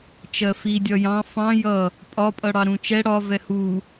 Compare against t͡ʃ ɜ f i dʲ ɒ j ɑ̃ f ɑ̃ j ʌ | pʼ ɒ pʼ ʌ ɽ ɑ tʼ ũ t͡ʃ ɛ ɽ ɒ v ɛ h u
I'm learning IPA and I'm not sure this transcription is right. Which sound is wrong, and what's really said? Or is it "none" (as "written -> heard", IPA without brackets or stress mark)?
tʼ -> ɾ